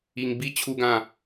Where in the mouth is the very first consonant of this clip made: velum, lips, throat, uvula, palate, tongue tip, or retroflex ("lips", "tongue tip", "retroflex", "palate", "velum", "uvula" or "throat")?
velum